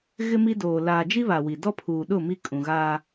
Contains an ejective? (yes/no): yes